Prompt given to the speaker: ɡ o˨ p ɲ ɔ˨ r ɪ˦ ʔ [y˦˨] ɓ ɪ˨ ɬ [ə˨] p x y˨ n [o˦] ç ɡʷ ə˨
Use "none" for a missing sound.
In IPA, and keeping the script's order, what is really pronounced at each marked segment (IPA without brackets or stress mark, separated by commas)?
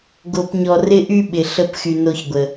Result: y˦, ə˦˨, o˦